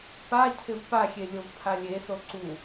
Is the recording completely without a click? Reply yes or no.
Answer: no